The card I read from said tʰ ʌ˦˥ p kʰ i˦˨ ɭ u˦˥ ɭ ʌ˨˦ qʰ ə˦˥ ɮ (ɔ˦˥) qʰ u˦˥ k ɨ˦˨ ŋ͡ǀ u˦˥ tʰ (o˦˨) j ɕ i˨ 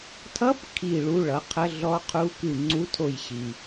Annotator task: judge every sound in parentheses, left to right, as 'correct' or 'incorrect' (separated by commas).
correct, correct